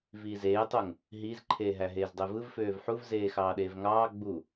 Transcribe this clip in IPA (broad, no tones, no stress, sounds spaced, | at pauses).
v iː z eː tˤ o ŋ | ɦ iː z ǃʰ eː ɦ æ ɦ eː z dˤ e v ɯ v f øː v ħ u v z eː x ɑː ɗ eː v ŋ ɑː ɡ͡b u